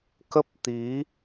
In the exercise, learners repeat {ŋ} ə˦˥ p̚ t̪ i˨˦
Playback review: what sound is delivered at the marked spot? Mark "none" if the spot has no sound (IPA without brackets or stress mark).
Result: k